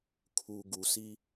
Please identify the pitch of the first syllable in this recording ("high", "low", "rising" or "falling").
low